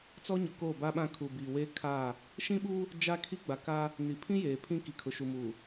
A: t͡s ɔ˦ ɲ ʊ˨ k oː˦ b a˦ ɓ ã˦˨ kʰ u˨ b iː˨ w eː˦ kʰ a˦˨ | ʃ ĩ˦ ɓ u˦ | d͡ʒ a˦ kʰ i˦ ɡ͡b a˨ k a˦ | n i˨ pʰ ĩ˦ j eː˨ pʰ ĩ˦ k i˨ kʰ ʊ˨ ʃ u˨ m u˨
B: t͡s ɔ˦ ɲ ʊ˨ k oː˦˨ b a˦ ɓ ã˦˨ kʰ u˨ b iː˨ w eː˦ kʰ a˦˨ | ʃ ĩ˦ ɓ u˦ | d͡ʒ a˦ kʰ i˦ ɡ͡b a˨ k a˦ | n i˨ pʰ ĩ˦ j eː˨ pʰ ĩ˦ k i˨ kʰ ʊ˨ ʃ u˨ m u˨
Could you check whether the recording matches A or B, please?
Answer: B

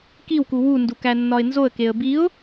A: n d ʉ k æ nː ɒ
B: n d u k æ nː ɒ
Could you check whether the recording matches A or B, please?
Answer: B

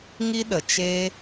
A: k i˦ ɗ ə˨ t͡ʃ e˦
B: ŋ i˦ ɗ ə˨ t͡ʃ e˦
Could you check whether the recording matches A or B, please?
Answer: B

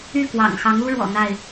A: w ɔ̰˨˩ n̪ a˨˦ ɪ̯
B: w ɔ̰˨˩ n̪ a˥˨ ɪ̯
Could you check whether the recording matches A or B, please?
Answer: B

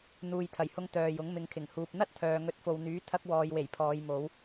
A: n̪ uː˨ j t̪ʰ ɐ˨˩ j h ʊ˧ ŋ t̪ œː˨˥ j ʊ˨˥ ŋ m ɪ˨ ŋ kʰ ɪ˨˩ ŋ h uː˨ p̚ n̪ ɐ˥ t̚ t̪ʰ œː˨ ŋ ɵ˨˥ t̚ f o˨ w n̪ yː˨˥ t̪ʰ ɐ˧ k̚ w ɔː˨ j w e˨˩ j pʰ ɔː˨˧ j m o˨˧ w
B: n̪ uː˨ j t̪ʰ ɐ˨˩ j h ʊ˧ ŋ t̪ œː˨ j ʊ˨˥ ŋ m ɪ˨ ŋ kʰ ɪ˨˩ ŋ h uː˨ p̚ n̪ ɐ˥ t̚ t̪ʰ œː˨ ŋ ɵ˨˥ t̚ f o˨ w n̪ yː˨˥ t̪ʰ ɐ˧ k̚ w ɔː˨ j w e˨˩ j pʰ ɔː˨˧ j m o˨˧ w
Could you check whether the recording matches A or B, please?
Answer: B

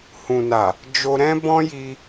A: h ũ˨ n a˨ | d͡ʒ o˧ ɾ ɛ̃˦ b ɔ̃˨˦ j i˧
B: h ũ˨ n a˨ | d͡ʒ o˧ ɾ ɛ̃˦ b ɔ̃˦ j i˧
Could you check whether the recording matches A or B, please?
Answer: B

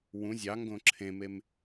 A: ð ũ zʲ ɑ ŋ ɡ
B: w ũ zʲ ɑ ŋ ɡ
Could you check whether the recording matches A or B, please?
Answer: B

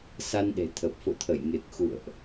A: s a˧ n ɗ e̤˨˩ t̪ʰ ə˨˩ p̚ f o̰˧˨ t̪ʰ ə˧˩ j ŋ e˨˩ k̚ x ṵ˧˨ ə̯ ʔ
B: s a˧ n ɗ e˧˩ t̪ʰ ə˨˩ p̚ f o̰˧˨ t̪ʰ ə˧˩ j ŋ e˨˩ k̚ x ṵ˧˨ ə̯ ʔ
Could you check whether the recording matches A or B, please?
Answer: A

